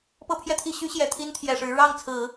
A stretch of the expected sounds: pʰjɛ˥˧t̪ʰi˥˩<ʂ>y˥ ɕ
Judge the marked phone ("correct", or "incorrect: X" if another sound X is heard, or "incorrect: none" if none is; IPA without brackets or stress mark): incorrect: ɕ